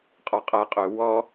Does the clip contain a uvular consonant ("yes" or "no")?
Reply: yes